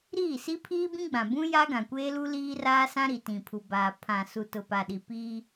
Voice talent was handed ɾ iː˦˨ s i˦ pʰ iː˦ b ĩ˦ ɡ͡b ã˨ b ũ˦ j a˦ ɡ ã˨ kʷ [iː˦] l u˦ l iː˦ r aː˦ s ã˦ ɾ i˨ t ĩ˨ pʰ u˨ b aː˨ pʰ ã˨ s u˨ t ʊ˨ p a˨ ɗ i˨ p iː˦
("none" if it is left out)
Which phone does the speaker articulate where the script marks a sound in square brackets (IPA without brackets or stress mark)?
eː˦